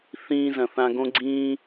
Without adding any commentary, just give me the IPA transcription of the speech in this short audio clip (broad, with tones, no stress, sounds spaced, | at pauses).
θ ĩː˧ z ɐ̃˨ θ ã˧ ɡ õ˦ ɡ͡ǀ ĩː˦